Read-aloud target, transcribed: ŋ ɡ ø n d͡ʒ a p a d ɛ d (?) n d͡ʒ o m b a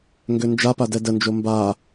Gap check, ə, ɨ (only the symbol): ə